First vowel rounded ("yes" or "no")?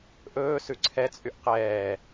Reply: yes